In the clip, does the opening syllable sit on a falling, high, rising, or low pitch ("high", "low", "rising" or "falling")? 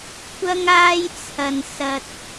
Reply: high